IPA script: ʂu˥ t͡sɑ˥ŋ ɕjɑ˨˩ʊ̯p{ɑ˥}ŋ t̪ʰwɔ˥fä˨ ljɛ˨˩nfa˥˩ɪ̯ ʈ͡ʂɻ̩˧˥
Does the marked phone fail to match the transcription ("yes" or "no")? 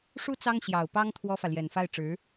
no